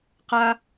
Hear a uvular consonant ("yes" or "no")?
yes